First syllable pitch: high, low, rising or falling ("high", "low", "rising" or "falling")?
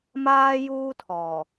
high